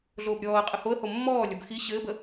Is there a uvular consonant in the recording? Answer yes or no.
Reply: yes